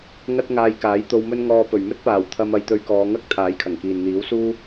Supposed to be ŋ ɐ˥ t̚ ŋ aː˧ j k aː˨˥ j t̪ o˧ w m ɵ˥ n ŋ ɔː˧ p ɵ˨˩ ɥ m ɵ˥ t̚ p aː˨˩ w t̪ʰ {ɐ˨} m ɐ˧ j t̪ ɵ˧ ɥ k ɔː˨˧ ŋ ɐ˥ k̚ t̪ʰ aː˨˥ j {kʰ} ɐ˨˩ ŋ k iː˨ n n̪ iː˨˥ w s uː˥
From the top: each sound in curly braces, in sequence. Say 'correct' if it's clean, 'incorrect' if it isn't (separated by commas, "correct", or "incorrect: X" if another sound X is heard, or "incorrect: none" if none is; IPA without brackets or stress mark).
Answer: incorrect: ɐ˧, correct